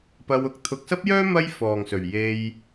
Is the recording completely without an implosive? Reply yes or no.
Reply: yes